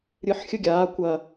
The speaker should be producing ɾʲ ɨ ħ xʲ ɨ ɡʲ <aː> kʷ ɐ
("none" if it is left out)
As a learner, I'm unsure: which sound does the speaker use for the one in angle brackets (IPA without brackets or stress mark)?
aː